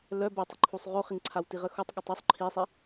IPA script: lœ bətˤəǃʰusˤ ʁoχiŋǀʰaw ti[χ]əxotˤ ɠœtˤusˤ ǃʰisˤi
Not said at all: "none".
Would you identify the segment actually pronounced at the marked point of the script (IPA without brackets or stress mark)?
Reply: ʁ